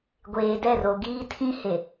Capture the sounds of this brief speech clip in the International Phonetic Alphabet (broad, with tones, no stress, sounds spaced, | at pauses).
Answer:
ɡʷ eː˨ d ɛ˦˨ r o˨ ɡ iː˦ tʰ ĩ˦ h e˨